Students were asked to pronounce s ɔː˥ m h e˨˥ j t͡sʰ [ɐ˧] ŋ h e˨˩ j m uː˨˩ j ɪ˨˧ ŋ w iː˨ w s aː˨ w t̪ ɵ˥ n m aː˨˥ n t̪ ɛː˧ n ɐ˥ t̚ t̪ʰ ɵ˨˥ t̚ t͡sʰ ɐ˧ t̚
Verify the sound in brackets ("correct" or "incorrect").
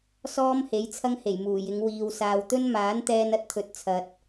incorrect